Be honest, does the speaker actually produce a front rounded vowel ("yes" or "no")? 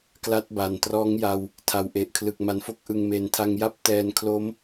no